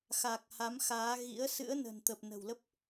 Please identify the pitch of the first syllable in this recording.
low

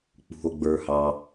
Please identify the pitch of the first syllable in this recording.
low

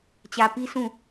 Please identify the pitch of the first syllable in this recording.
low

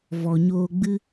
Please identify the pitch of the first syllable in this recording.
low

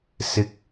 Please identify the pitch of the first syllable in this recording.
high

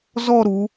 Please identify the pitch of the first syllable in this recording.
falling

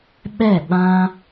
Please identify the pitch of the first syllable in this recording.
falling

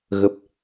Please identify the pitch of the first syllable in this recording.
low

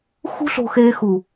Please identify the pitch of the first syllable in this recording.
high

